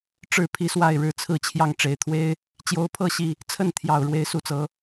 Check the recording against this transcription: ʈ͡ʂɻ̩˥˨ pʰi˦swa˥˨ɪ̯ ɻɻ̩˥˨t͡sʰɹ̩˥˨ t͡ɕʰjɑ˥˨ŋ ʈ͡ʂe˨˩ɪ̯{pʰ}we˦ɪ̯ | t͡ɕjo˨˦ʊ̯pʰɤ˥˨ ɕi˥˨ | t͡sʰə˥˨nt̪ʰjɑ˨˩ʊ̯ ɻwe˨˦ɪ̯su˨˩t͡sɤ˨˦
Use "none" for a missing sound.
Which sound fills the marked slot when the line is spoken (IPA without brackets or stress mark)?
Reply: t̪ʰ